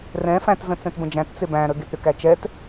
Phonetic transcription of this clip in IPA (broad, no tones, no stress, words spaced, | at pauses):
rɛ̃ fæ̃tzə̃ t͡sɛ̃tbə̃d͡ʒæ̃t t͡sebæ̃ɾə ɡetɾʏkæt͡ʃɛt